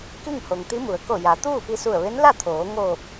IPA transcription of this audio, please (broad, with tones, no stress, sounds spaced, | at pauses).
k i˥˨ ŋ h o˩ ŋ t̪ i˧˥ m u˩˧ ə̯ k o˧˩ j a˩˧ t̪ uː˥˨ p i˧ s u˧˩ ə̯ ʋ e˧˥ n l a˥˨ t̪ʰ oː˩˧ ŋ oː˧˩ p̚